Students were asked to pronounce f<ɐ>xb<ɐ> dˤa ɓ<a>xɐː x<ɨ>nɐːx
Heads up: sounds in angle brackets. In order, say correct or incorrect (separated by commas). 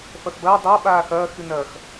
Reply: correct, incorrect, incorrect, correct